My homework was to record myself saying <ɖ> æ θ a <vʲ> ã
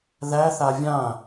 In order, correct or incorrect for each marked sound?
incorrect, correct

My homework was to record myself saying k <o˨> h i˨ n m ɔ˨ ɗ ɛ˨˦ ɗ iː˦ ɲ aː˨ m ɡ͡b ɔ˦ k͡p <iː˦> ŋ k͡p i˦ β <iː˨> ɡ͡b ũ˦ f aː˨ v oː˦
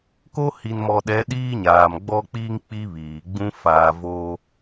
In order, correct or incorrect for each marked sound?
incorrect, correct, correct

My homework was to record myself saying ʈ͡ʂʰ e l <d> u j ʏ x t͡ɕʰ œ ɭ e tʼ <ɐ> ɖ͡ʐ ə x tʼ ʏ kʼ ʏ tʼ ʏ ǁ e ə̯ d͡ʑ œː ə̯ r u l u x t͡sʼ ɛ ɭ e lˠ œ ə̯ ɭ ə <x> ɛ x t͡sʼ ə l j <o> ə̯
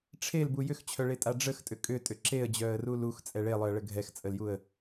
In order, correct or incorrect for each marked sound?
incorrect, incorrect, incorrect, incorrect

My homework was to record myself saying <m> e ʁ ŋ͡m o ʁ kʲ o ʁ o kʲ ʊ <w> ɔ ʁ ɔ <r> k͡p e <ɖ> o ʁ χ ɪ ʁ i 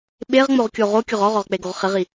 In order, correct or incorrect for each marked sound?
incorrect, incorrect, incorrect, incorrect

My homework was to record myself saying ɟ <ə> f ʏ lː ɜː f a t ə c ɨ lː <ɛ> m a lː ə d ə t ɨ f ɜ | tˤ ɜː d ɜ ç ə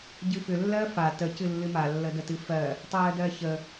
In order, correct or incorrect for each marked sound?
incorrect, incorrect

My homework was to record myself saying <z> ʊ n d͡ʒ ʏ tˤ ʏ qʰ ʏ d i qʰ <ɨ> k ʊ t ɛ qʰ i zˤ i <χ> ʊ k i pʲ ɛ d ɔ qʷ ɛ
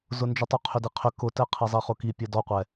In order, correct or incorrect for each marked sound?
correct, incorrect, correct

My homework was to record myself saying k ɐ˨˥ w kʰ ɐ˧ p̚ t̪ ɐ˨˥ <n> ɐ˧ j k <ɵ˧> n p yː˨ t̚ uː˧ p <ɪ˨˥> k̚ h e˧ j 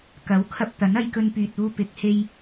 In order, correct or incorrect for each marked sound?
correct, correct, correct

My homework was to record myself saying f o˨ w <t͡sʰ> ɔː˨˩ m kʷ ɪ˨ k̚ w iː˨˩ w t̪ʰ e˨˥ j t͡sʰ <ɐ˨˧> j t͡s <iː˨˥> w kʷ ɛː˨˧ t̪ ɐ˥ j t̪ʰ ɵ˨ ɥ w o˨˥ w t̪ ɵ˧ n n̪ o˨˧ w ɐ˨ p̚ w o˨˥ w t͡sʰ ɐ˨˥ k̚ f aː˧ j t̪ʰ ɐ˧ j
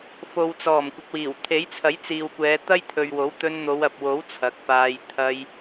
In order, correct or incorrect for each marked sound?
incorrect, incorrect, incorrect

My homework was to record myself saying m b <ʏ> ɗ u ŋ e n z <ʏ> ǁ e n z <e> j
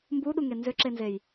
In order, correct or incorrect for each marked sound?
incorrect, correct, correct

